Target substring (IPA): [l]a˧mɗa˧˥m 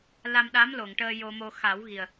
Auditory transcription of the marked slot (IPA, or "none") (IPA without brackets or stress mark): l